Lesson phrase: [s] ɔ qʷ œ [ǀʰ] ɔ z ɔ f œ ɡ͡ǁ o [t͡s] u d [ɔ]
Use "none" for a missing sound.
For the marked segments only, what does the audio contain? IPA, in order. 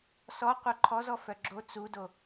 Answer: s, ǃʰ, t͡s, o

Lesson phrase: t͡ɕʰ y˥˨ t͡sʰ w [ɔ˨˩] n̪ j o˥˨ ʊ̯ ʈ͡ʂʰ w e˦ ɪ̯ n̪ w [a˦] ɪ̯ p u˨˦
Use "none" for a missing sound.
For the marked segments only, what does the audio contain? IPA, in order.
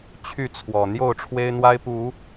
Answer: ɔ˨˩, a˦

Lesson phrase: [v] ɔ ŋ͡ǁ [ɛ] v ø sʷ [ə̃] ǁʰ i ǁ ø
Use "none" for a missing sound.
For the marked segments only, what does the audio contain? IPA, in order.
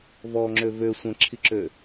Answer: v, ø, ə̃

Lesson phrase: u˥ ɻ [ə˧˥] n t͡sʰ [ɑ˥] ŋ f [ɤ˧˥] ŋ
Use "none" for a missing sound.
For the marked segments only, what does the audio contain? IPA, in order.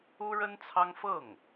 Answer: ə˥, ɑ˥, ɤ˥˩

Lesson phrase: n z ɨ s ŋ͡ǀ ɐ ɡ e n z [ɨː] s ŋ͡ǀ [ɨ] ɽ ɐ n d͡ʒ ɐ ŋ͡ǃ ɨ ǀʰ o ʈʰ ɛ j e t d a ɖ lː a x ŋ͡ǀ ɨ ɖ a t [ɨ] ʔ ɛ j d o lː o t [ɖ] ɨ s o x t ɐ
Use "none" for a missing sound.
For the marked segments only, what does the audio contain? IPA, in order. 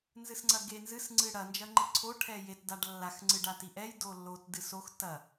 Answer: ɨ, ɨ, i, d

